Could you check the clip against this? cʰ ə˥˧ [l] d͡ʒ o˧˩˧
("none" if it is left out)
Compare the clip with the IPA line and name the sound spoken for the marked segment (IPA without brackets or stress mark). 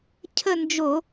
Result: n